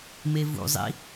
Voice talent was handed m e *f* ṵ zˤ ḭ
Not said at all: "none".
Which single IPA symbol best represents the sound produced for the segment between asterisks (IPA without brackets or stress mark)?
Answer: v